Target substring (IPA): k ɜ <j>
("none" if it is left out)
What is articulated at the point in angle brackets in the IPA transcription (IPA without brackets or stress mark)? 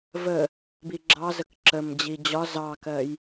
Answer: j